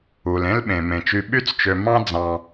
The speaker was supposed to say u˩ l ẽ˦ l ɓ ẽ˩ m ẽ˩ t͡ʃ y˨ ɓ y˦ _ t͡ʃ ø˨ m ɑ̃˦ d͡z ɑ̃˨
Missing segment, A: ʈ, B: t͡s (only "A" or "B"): B